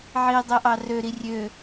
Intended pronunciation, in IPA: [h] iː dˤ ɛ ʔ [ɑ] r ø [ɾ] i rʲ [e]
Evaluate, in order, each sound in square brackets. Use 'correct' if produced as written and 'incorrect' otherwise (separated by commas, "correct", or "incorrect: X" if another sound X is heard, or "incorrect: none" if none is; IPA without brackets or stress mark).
incorrect: ʕ, correct, correct, incorrect: ø